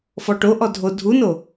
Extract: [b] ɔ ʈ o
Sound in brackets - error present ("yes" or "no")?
yes